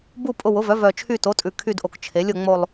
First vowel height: high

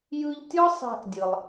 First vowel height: high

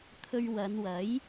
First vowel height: mid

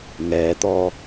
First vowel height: mid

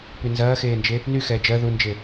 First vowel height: high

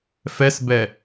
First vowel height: mid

